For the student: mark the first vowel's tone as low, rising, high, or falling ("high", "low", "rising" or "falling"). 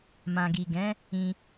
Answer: low